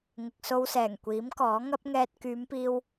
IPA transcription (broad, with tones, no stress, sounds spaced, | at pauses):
ŋ ɪ˨ k̚ s o˧ w s ɛː˨˩ ŋ kʷ iː˨˥ m k ɔː˨˥ ŋ ɐ˥ p̚ ŋ ɛː˧ t̚ k yː˨˧ m p iː˧ w